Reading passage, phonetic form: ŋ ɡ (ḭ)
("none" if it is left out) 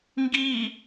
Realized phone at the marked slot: i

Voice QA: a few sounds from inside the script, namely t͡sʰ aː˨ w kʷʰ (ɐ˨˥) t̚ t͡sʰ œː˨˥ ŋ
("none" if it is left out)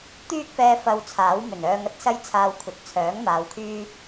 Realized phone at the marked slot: ɐ˨˥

